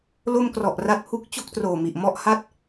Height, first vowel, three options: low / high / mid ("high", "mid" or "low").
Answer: mid